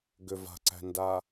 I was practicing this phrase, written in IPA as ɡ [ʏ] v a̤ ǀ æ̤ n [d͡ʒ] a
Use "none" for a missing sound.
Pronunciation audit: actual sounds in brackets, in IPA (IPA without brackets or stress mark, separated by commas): ʏ, d